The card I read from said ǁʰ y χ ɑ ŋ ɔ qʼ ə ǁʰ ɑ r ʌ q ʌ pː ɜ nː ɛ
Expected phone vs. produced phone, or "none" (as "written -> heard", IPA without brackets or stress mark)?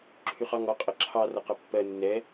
none